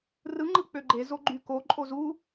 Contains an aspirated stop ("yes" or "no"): no